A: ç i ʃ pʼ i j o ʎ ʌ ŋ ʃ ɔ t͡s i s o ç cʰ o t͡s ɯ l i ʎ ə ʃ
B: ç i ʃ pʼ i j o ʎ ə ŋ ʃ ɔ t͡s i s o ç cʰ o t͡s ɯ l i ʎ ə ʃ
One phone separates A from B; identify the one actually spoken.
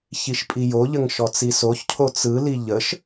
B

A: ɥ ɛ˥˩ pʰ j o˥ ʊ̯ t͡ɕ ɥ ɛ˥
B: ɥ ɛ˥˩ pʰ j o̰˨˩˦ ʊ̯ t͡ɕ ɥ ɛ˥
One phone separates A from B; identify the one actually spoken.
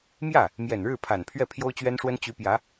A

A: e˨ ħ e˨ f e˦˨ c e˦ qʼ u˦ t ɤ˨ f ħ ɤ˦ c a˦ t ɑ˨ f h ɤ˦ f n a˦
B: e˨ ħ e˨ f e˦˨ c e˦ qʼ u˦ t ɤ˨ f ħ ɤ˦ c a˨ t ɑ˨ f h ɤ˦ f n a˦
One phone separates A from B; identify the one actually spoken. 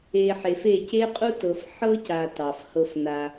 B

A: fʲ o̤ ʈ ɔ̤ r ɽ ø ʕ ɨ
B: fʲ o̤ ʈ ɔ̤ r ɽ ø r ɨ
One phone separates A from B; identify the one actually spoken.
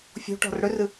B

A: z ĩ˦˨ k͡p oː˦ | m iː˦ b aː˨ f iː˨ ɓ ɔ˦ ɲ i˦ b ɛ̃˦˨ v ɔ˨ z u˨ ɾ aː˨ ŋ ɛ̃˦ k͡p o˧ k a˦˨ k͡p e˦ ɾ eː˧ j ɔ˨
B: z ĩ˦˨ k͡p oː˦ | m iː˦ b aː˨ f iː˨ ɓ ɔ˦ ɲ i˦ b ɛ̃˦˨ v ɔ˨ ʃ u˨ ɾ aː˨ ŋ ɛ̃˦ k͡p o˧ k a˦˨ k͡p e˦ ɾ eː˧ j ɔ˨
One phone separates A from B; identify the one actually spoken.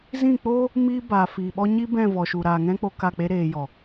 B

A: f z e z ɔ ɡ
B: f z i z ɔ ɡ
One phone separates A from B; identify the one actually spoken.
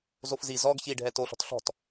B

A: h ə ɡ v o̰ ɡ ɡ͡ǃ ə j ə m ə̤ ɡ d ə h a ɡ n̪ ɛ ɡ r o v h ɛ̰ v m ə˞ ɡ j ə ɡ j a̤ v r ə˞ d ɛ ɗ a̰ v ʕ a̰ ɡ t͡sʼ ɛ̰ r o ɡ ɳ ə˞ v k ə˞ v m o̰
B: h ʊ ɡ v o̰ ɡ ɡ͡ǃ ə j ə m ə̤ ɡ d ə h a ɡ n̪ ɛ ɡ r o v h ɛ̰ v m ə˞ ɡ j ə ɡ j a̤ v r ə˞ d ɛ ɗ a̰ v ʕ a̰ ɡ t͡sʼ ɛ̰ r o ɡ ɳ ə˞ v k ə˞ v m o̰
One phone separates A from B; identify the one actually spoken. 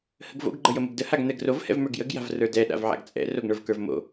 A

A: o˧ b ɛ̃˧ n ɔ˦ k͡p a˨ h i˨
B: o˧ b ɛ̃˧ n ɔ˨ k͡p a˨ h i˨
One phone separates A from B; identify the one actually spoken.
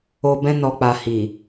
B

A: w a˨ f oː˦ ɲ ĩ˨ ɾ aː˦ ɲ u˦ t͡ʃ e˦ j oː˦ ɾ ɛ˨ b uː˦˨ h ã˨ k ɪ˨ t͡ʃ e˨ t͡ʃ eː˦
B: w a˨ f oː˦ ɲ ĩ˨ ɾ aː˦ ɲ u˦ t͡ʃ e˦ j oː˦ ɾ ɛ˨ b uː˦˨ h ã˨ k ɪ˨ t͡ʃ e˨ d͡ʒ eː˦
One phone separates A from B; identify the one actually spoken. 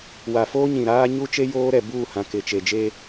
B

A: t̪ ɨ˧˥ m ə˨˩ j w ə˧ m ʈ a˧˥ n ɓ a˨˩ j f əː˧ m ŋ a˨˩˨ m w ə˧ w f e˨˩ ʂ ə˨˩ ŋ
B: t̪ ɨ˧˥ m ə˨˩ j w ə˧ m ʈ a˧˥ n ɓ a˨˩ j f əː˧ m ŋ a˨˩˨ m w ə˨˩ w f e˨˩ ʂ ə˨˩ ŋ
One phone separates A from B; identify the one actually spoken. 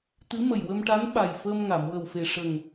B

